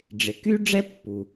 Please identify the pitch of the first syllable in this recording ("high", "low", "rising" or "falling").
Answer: low